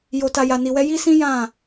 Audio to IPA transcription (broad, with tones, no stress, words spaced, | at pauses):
jo˧ta˧ ja˧ni˧wɛ˦ ji˦sĩ˦ jã˦˨